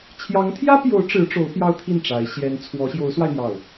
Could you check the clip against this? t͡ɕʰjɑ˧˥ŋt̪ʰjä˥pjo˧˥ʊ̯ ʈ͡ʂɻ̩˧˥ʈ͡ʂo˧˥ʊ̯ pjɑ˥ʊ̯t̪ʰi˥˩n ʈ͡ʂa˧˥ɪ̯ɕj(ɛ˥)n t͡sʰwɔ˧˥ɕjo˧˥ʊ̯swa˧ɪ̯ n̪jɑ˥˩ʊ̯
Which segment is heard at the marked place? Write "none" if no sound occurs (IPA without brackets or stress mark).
ɛ˥